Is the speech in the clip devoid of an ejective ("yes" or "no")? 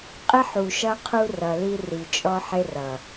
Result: no